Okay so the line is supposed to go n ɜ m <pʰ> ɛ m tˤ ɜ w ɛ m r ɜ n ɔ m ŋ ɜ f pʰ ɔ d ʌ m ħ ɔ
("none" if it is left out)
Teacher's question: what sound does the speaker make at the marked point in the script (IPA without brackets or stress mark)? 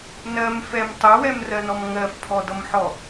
f